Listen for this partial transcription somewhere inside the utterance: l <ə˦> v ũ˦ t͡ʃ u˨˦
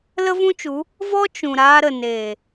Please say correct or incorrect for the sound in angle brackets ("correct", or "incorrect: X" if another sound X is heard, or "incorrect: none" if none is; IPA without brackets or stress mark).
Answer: correct